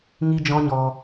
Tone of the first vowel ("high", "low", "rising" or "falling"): high